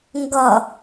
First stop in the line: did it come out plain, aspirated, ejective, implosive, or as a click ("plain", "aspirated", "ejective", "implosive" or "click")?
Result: plain